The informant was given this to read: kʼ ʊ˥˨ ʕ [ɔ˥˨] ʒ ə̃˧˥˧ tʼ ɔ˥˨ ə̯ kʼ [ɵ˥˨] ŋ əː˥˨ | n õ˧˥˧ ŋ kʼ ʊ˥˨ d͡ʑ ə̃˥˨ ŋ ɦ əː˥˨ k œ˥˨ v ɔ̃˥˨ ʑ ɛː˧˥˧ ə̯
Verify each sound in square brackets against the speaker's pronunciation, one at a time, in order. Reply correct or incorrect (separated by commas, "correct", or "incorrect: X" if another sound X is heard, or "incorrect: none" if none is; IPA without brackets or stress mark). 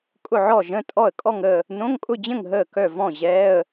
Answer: correct, incorrect: ɔ˥˨